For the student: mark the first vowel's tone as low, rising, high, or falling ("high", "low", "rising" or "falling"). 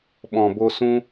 low